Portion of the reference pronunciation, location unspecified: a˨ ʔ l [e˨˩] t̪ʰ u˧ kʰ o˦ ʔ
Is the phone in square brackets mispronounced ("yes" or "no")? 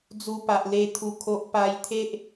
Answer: yes